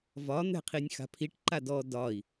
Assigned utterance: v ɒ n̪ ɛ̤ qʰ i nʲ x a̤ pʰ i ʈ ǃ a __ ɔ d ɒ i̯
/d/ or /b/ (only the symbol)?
d